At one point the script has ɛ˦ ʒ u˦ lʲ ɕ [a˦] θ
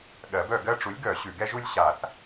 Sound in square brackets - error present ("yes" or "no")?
yes